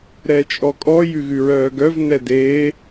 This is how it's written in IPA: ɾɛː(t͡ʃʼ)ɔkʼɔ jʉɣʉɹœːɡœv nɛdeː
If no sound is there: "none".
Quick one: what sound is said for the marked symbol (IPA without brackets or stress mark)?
t͡ʃʼ